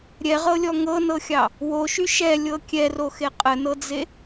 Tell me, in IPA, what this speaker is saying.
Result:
ɾʲ ɛ ʁ ɤ lʲ ɔ ŋ ɤ n ɤ xʲ ɑ | w o ʃ y ʃ ɛ lʲ ɤ kʲ ɛ r o x e qʼ ə n ɤ d͡z e

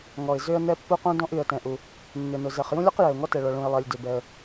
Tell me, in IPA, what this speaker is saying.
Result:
ŋ ɔ˩ ɪ̯ z ʏ˥ ə̯ n ɛ˥ pː u˥ q ũ˥ d ɔ̃˥ ʔ y˩ ə̯ t ɛ̃˩ ʔ u˩ | nː ʏ˩ n ʊ˩ z ɛ˩ χ j ũ˥ lʲ ɔ˥ q j ɛ˩ ʊ̯ ŋ ɔ˥ t ɛ˩ ɭ ɔ˩ ɭ ũ˩ ɪ̯ lˠ ɛ˩ lʲ d ʏ˩ b ɛ˩ ə̯

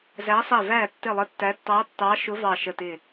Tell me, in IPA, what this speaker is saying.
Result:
z æ˨˦ sˤ ɛ˧˩ v æ˧˩ tː ɪ˧˩ lˠ ə˨˦ tː æ˨˦ tː ɑ˨˦ tː ɑ˨˦ ʃ ʊ˨˦ v ɑ˧˩ ʃ ə˧˩ t ɪ˧˩

